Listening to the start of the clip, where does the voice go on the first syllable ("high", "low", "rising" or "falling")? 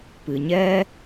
low